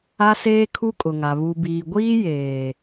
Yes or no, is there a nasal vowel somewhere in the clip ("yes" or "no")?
no